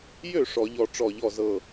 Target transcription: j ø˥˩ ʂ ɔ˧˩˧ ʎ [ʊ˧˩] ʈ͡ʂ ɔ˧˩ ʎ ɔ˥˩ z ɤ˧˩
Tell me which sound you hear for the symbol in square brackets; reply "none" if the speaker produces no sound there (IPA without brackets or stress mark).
ɔ˧˩